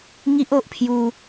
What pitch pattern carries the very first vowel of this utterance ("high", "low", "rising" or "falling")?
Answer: high